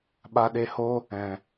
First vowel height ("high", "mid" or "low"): low